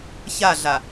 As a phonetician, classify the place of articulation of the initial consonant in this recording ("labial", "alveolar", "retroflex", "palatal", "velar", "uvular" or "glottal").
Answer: palatal